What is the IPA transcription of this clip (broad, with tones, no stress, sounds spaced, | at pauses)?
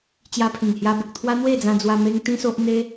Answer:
t͡ɕ j a˧ pʰ ĩ˨˩ ŋ h j a˧ b ə˨ k̚ t̪ʰ w a˦ n̪ w e˥˧ d͡z ã˧ d͡z w a˧ m e˦ ŋ t̪ ĩ˦ s o˦ ʔ n̪ e˦